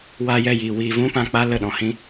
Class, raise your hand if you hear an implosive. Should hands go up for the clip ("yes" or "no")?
yes